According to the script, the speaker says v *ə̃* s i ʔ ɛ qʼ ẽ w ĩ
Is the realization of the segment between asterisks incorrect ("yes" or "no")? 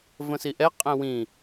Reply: no